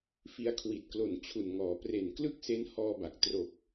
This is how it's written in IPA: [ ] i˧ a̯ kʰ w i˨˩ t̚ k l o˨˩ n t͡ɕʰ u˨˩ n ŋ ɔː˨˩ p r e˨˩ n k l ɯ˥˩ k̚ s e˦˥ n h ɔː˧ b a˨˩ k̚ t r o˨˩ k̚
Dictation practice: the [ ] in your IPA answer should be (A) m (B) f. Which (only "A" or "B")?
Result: B